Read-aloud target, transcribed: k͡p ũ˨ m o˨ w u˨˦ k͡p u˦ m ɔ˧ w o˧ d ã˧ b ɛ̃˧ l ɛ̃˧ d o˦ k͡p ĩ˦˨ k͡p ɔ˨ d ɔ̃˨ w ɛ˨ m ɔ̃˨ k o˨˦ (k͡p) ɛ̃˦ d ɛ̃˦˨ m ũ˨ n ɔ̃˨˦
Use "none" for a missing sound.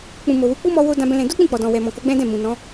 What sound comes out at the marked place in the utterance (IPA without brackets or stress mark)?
ɡ͡b